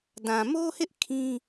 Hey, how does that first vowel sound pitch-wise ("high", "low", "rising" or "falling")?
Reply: low